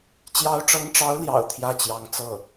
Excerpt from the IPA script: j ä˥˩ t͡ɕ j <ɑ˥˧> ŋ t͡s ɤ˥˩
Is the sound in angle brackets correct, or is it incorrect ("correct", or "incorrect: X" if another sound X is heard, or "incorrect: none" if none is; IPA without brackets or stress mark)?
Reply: incorrect: ɑ˧˥